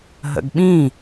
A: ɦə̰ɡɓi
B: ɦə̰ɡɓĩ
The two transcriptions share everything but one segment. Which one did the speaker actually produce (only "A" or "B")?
B